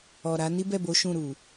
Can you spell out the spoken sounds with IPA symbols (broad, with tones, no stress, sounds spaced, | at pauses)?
ɔ˨ ɾ a˨˦ n i˦ b ɛ˦˨ b o˨˦ ʃ ũ˦˨ ɾ u˨